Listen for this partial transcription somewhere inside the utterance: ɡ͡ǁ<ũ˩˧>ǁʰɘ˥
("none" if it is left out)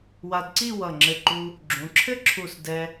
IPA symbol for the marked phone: ũ˩˧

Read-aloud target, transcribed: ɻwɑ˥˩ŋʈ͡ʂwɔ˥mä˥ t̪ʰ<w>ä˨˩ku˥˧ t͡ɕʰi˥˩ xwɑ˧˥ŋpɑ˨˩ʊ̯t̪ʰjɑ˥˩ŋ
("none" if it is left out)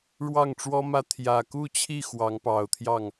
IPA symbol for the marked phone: j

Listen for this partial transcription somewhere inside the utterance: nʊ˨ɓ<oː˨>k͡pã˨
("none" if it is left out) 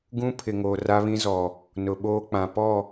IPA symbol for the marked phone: oː˦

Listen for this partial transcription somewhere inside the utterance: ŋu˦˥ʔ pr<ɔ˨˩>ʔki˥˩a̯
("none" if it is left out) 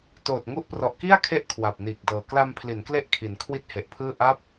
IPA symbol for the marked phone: ɔ˨˩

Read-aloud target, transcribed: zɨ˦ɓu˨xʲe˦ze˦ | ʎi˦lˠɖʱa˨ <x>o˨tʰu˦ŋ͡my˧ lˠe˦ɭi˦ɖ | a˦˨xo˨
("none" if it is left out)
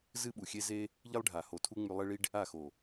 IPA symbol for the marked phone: h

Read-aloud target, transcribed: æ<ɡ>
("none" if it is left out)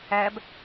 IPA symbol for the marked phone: b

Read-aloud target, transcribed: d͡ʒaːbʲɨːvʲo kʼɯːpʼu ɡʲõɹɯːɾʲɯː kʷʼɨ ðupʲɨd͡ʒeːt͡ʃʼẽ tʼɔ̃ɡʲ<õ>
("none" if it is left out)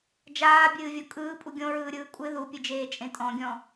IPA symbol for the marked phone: ɔ̃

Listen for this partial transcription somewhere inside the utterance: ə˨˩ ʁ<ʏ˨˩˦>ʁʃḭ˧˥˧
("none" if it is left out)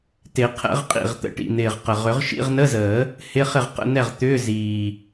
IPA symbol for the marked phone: ʏ˨˩˦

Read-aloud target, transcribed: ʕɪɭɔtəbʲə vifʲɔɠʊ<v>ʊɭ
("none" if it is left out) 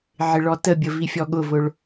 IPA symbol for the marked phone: v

